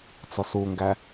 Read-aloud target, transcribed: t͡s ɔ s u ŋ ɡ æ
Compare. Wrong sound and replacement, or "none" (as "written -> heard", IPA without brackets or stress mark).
none